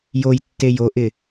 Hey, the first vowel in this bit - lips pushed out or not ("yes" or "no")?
yes